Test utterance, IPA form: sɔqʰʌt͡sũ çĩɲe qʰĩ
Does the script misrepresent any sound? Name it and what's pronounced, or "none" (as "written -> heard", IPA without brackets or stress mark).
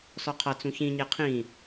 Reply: none